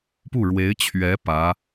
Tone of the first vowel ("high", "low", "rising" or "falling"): falling